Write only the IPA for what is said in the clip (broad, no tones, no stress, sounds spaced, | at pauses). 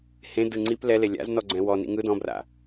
h ẽ d ɯ ŋ͡ǀ i p l ɛ l e lʲ a̰ z n ɔ ɡ͡ǀ ɛ̃ w ɔ n ḭ ŋ ɯ d ɔ̃ b r a̰